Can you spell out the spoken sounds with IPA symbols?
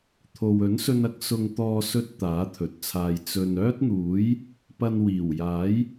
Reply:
t̪ʰ o˨ w ɵ˨˥ n s ɵ˧ n ɐ˨˥ k̚ s ʊ˧ ŋ t̪ ɔː˧ s ɵ˥ t̚ t̪ aː˨˥ t̪ʰ ɵ˨ t̚ t͡sʰ aː˧ j t͡s ɵ˨ n œː˥ t̚ n̪ uː˨˥ j | p ɐ˧ n w iː˨˩ w j aː˨˥ j

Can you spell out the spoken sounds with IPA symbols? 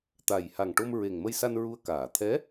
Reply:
t̪ a˨˩ j h a˨˩ ŋ ʈ o˧ m ɹ e˨˩ ŋ m ə˧ j s a˧ n ɹ u˧ ə̯ k aː˨˩˨ t̪ʰ ɛ˧˥

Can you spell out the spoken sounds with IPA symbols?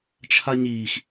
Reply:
t͡ʃʰ a ɲ iː x

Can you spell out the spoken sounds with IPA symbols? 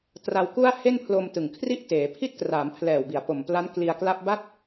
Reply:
t r a˧ w k u˥˩ a̯ h e˥˩ n pʰ l o˧ m t ɯ˨˩ ŋ kʰ r i˥˩ ʔ t eː˩˦ pʰ i˥˩ t̚ k r aː˩˦ m pʰ l ɛː˨˩ w b i˩˦ a̯ p o˨˩ m p l a˦˥ n k l i˧ a̯ k l a˥˩ p̚ b a˥˩ t̚

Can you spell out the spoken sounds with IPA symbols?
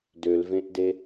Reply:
d ø l v ẽ ʔ d e

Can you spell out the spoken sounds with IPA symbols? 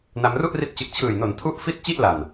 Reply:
n a˧ m r u˥˩ ʔ r i˦˥ t̚ t͡ɕ ɯ˨˩ k̚ t͡ɕʰ ɯː˨˩ j n o˨˩ n tʰ u˥˩ ʔ f i˥˩ t̚ t͡ɕ i˥˩ ʔ l a˨˩ n

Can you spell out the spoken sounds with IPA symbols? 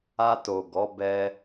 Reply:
a˧ t o˨ ɡ ɔ˨˦ b ɛ˧

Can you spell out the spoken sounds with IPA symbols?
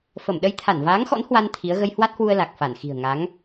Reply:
f ə˧˩ m ɗ ə˧ j t̪ʰ a˧˩ n v aː˨˦ ŋ x ɔ̰˧˥ n h w a˧ n t̪ʰ i˨˦ ə̯ ɣ ə˧ j h w a˦˥ t̚ h w u˧ ə̯ l a˨˩ k̚ f a˧˩ n x i̤˨˩ ə̯ ŋ a˨˦ ŋ

